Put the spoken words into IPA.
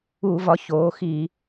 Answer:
u˧˩˧ v ɒ˩˧ ç oː˩˧ x i˧˩˧

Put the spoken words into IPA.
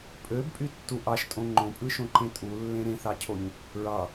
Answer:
pʼ ø b pʼ y tː u ʔ ɑ ʃ tʼ õ ŋ͡ǃ õ pʼ ɯ ʃ õ ǃ ẽ tʼ u lː ẽ ɾ ẽ θ ɑ cʰ o ɲ | ɹ ɑ

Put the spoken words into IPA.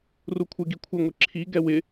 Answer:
r u kʷʰ ɪ ɡ i kʷʰ ɪ ŋʷ e ǁʰ i ɡ ɛ w ɪ

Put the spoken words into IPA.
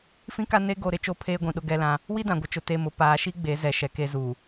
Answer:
f ĩ˦ k a˦ n e˦ ɡ o˨ ɾ ɪ˨ t͡ʃ o˦˨ pʰ eː˦ ɡʷ ĩ˨ ɗ ʊ˦ ɡ ɛ˦ l ã˦ | w i˦ d ã˨ ɡʷ ɪ˨ t͡ʃ ʊ˨ t e˨ m ʊ˨ p aː˨ ʃ i˦ ɡ͡b e˨˦ z ɛ˨ ʃ ɛ˨ k e˦ z u˨

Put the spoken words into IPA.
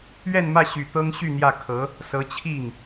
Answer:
ɥ ɛ˥˧ n m ä˥˩ ɕ y˨˩ t̪ ɤ˥ ŋ ɕ y˥˧ n̪ j ä˥˩ kʰ ɤ˧˥ | s ɤ˧˥ t͡ɕʰ i˥˩ ŋ

